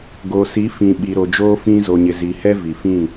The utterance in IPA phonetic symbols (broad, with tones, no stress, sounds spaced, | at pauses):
ɡ o˨ s i˨˦ f ĩ˨ ɓ i˨ ɾ o˨ d͡ʒ oː˦ f ĩ˦ z o˨ ɲ ɪ˨ z i˨ h ɛ˦ v i˨ f ĩ˦˨